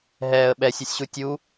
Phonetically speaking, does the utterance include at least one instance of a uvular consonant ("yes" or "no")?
no